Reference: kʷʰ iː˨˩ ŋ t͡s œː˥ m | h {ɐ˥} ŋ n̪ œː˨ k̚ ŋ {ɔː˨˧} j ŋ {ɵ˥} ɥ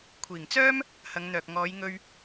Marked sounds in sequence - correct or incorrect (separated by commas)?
incorrect, correct, incorrect